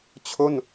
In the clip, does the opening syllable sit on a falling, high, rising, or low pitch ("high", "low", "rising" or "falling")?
falling